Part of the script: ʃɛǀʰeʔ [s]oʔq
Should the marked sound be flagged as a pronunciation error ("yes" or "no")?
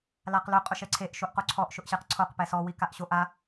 yes